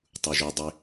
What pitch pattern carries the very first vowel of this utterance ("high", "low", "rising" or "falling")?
low